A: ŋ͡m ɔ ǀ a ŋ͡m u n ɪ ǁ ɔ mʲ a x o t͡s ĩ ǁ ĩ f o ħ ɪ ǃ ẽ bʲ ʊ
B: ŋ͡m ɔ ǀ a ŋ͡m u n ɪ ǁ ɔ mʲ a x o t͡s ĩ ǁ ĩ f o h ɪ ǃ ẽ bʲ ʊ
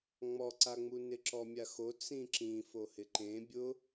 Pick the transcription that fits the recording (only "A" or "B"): B